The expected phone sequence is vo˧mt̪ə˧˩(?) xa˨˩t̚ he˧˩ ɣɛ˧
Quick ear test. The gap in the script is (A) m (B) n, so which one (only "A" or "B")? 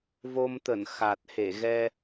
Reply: B